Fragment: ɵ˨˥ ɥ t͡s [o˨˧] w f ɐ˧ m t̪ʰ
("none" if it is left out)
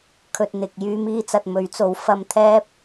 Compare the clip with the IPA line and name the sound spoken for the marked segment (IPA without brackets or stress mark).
o˨˥